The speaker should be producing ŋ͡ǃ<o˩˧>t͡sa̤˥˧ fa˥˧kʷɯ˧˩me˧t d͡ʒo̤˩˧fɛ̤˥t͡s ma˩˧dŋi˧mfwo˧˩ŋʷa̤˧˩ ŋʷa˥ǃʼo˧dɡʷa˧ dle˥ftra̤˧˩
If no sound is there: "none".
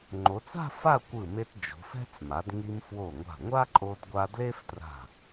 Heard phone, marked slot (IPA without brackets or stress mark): o˩˧